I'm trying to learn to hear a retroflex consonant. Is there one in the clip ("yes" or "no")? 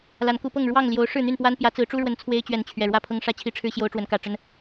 yes